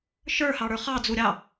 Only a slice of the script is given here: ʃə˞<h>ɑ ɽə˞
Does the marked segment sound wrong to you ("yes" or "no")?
no